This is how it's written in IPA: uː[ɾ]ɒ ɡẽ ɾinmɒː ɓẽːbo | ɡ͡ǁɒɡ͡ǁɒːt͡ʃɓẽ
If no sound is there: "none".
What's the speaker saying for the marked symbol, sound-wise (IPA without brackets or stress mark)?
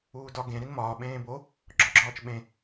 d